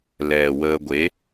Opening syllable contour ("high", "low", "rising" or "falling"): low